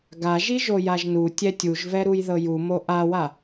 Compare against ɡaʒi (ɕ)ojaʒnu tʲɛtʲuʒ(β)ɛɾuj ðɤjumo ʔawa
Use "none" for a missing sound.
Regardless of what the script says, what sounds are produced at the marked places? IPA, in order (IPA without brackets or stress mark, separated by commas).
ʒ, v